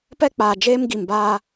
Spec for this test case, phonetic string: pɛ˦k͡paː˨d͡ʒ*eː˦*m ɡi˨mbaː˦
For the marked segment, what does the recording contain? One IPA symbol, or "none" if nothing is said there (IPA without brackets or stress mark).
eː˦